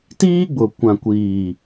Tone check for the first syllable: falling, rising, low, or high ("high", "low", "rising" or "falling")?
high